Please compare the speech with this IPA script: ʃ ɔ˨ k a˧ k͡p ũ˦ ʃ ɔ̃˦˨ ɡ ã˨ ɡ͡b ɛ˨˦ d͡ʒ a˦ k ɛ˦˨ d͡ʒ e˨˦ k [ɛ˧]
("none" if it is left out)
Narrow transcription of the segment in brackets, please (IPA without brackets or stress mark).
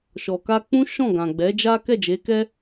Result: ɛ˦